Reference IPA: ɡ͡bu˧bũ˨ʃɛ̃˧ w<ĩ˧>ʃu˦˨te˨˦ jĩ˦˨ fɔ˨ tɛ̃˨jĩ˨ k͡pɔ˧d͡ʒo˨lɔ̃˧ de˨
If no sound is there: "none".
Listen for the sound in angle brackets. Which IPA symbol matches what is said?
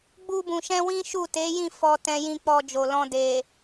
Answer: ĩ˦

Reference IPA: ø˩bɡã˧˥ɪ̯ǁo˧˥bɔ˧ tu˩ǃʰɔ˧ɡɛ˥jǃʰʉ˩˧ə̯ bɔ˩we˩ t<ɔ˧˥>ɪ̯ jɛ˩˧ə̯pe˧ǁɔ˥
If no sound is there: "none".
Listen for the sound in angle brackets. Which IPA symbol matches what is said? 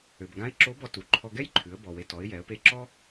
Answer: ɔ˩˧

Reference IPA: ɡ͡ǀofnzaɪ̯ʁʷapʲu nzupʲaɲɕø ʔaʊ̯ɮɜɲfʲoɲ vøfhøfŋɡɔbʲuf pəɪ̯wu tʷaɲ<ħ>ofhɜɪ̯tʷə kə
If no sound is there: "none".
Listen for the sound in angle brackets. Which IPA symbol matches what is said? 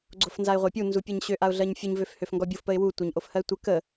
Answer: ʔ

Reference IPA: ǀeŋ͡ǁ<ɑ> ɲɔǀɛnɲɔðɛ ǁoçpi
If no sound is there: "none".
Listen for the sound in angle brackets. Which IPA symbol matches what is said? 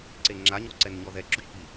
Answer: a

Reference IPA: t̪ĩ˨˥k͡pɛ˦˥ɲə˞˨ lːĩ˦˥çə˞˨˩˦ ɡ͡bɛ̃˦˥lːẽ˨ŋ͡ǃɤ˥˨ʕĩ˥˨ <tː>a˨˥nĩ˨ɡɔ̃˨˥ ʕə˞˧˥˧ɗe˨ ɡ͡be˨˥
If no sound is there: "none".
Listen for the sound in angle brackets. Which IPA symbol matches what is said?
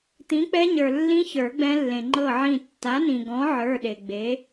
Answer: tː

